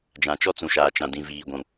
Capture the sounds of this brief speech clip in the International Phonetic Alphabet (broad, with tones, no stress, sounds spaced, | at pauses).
d͡ʒ ã˨ t͡ʃ ɔ˦ t͡s ũ˨ ʃ aː˨ t͡ʃ ã˨ d ĩ˨ v iː˨ ɡʷ ũ˨